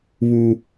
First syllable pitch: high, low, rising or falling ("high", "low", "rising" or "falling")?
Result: high